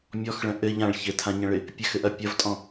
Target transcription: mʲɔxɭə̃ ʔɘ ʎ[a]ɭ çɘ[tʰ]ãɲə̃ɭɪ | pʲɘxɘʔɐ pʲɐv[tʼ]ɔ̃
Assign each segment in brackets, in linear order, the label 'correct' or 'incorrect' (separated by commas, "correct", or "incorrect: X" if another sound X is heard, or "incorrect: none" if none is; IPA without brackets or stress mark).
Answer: incorrect: ã, correct, correct